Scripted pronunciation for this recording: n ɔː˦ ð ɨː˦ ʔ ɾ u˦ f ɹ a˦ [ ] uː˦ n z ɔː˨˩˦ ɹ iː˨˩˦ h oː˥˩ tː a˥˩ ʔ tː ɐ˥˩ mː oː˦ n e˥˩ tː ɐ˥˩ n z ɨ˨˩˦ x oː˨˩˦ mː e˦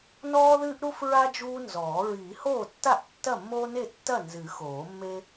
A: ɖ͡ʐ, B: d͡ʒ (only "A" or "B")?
B